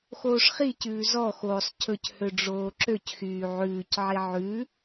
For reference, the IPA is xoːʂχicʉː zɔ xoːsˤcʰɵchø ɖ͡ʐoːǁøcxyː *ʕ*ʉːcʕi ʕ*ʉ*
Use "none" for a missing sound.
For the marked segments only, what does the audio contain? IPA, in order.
ʕ, ʉ

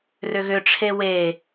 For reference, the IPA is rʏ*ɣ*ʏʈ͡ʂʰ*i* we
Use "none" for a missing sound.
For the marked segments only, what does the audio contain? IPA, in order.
ɣ, e

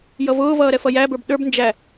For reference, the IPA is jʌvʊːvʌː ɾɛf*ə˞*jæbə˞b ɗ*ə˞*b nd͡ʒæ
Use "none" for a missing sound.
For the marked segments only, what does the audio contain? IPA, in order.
ʌ, ə˞

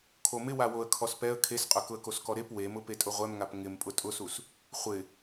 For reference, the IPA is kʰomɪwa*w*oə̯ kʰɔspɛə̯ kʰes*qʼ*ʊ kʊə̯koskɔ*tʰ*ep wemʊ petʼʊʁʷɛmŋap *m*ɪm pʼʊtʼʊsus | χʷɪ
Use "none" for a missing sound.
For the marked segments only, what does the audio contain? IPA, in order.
w, qʼ, ɾ, ŋ

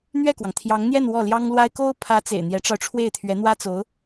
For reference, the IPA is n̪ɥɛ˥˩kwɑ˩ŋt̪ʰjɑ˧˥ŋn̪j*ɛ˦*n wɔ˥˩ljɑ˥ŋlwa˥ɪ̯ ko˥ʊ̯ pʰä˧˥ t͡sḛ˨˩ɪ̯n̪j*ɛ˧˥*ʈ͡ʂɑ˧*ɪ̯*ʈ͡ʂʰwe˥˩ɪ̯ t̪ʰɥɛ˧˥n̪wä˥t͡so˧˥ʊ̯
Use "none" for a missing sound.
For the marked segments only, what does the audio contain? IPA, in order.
ɛ˥˧, ɛ˧˥, ʊ̯

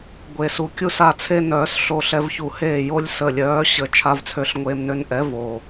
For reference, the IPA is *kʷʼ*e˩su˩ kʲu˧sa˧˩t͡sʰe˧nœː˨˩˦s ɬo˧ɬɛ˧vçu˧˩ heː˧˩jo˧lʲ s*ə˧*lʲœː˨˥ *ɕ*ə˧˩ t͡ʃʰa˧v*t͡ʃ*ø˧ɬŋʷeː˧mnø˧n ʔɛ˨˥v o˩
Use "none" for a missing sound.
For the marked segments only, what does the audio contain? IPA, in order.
ɡʷ, ə˧˩, ɕ, t͡sʰ

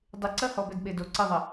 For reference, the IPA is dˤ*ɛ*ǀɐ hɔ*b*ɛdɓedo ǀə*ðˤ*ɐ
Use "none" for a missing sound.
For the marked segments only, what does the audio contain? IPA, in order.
ɪ, b, ðˤ

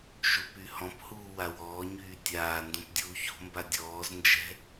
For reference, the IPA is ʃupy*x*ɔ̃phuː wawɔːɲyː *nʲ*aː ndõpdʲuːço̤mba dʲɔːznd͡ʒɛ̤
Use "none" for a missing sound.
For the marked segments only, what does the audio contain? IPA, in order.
h, tʲ

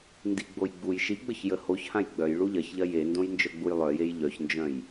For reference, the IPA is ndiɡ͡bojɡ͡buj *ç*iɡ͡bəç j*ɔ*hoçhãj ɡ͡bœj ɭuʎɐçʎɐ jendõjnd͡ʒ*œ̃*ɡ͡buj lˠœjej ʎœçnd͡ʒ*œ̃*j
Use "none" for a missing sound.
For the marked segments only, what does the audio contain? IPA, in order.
ʃ, ə, œ, œ̃

